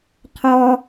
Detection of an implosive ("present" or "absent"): absent